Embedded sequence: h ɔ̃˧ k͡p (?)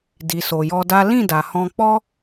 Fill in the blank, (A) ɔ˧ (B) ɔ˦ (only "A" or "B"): B